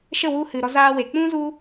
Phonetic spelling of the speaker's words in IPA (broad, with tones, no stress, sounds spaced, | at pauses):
ʃ ə˦˨ w u˧ h ɨ˨ ɾ ɔ˧ z aː˧ w e˨ k͡p ũ˦ z u˦